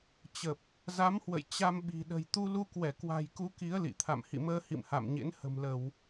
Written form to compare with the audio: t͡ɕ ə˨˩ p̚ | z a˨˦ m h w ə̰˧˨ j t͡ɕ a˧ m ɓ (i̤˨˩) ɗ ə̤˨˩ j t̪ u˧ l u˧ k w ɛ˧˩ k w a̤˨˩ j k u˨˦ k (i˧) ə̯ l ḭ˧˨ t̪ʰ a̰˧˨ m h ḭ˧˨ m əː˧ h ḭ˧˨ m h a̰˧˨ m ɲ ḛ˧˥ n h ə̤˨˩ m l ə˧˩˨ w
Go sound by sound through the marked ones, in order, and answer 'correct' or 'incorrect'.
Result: correct, incorrect: i˨˦

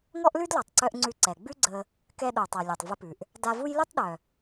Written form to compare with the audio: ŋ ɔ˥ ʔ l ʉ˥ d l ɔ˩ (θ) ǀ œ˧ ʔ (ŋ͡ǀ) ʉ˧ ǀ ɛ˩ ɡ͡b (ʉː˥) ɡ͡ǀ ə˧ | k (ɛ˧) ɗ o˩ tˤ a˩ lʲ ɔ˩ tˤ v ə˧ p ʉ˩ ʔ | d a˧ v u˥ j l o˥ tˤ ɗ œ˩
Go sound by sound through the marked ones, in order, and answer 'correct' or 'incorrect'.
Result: incorrect: tˤ, correct, incorrect: ʉ˥, correct

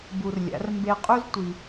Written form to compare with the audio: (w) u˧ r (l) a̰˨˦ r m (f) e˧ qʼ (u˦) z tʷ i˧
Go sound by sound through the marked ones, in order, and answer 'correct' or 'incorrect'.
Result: incorrect: b, incorrect: lʲ, incorrect: b, correct

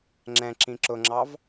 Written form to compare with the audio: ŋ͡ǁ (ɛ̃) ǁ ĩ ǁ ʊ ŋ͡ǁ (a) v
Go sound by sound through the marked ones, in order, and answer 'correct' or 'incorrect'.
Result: correct, incorrect: ɑ

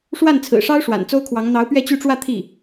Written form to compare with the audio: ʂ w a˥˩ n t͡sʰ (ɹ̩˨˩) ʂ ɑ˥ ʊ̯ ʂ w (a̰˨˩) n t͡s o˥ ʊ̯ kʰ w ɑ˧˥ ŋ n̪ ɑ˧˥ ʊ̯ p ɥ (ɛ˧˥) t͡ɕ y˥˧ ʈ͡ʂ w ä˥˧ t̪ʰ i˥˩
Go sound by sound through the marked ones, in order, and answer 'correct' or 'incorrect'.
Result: correct, correct, incorrect: ɛ˥˧

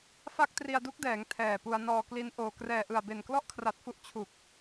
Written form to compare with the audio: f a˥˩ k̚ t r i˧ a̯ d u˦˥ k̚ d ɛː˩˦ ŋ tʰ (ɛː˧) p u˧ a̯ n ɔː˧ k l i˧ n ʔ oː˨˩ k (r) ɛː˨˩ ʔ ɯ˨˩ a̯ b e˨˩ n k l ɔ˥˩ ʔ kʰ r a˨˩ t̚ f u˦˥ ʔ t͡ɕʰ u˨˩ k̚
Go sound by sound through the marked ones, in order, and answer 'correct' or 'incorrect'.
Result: incorrect: ɛː˨˩, correct

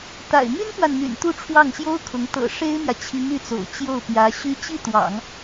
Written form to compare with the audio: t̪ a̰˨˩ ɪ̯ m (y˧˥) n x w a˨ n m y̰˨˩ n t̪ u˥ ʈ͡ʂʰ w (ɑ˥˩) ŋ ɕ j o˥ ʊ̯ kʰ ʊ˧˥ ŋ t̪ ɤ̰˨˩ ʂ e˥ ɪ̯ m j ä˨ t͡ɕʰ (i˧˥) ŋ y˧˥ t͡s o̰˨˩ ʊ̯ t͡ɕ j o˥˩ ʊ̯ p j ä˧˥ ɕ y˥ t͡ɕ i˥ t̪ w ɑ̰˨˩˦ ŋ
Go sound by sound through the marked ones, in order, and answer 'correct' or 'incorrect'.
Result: incorrect: y˥, correct, correct

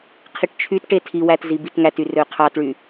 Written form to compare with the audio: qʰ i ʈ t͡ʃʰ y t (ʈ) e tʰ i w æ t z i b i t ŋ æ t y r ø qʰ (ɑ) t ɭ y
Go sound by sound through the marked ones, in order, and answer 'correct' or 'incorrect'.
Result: correct, correct

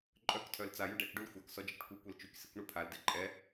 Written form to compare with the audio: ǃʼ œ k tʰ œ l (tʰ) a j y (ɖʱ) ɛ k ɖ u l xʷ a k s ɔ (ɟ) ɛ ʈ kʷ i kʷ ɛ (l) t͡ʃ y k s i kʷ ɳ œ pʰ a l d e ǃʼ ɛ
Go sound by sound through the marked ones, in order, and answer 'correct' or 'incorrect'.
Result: incorrect: t͡s, incorrect: ɖ, incorrect: d͡ʒ, correct

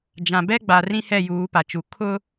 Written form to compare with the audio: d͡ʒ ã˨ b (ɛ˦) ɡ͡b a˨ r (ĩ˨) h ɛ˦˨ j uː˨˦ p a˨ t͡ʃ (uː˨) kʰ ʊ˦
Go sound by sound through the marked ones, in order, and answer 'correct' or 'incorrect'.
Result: correct, incorrect: ĩ˦, incorrect: u˨

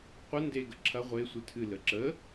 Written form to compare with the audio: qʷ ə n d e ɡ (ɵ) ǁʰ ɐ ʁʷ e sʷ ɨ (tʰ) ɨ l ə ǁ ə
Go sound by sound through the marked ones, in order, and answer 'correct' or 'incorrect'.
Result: incorrect: ə, correct

